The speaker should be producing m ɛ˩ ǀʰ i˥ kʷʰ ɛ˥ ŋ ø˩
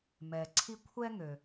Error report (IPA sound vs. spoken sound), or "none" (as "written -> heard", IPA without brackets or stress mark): none